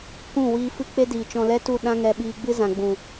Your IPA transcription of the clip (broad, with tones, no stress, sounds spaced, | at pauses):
k ũ˦˨ w iː˧ f ɨ˦ k͡p e˦ d iː˨ t͡ʃ ɔ̃˧ l ɛ˦ t u˦˨ ɗ ã˦ ŋ ɛ˧ ɓ iː˧ ɡ͡b ɨ˦ z ã˨ ɡ͡b ũ˨